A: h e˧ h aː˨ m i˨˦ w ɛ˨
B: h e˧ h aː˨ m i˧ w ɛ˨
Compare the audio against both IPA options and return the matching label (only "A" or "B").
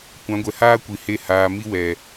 B